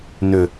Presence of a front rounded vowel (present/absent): present